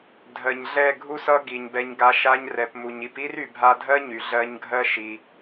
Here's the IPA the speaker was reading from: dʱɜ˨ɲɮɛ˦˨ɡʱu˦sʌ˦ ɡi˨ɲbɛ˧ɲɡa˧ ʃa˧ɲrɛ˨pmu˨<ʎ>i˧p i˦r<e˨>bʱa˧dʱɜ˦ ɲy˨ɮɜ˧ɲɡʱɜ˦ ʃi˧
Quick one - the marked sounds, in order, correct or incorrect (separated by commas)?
incorrect, incorrect